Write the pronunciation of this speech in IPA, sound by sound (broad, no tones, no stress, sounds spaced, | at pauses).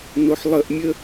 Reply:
n o ħ lˠ ə ʔ mʲ ə